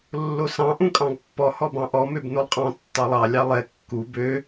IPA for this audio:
lː o s ɑ̃ ʔ ũ kʼ ɑ̃ ɡ pː ɔ h ɔ b ɑ̃ ʔ ɔ m ø b n o lˠ qʼ ɑ̃ tː ɑ lˠ ɑ lʲ ɑ lˠ ɛ kː u b ø

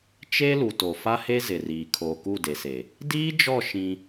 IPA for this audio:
t͡ʃ e˦ l u˨ t o˨ f a˦ h e˦ z ɪ˨ r iː˨ kʰ oː˨ k u˦˨ d e˨ s e˨ | d iː˦ d͡ʒ ɔ˦˨ ʃ ĩ˦

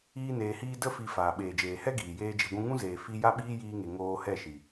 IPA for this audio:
iː˦ n eː˧ h iː˦ d ə˦ f i˦ f aː˨ ɓ eː˨ d͡ʒ eː˨ h ɛ˦ ɡ iː˨ j eː˦ d͡ʒ i˧ ɡʷ ũ˦ ŋ ũ˦ z eː˨ f i˦ j a˦ ɓ iː˦ j iː˧ ŋ e˨ ŋ oː˧ h ɛ˦˨ ʃ i˨

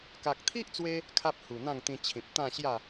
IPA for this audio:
k a˨ k̚ t̪ʰ i˦ ʔ t͡s w e˧ | kʰ a˦ p̚ h u˨˩ n̪ ã˥˧ ŋ t̪ ĩ˧ t͡ɕʰ ĩ˨ p̚ t̪ ã˥˧ ɕ j a˥˧

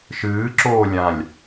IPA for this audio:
ʃ ɨː ǁ oː lʲ ã lʲ

